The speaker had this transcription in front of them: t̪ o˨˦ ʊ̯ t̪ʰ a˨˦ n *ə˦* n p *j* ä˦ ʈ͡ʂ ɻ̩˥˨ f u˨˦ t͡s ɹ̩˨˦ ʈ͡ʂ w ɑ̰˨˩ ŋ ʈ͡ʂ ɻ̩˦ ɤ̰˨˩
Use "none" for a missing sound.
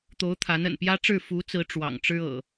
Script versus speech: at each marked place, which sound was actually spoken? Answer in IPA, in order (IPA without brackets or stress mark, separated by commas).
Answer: ə̰˨˩, j